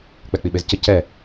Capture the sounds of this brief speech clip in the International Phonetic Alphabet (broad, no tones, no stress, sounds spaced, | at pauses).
k͡p ɛ k͡p i ɓ e z c ə c ɛ